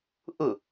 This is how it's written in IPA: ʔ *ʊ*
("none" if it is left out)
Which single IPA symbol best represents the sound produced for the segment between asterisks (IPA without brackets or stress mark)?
ʊ